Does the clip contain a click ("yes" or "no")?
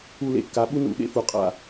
no